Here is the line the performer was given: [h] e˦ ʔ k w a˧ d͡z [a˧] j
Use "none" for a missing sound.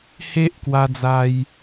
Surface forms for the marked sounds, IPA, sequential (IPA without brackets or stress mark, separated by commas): h, a˧